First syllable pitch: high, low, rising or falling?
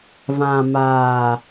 low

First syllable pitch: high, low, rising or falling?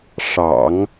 low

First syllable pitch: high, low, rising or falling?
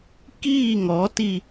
falling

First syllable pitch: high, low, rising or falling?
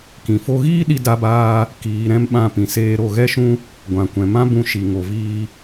low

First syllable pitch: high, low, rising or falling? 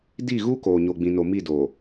falling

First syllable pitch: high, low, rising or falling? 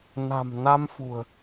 low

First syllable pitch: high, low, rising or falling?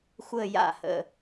falling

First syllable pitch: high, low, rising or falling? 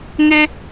low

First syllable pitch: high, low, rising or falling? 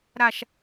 falling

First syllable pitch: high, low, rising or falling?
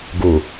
low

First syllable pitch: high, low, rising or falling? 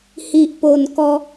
low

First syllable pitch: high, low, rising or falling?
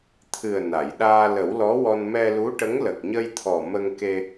low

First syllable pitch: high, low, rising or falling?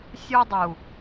high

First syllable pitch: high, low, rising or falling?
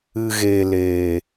low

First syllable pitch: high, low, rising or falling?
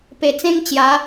low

